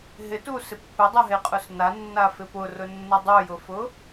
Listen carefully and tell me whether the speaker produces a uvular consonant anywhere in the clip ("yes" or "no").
yes